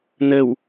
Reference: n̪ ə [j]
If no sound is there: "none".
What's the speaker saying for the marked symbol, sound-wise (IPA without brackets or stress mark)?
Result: w